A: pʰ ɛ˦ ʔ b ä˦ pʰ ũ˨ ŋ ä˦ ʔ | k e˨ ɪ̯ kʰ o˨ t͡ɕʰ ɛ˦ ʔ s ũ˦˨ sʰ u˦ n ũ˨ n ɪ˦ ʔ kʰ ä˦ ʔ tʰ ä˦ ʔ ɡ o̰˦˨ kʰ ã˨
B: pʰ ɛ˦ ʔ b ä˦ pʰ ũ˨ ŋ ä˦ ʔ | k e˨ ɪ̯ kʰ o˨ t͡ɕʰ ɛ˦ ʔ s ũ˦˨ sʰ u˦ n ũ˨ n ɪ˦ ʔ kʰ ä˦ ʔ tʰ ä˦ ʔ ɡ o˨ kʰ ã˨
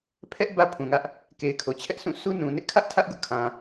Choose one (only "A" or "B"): A